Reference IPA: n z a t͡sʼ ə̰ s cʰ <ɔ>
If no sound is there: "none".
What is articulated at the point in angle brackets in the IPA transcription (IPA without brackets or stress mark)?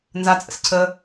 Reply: ə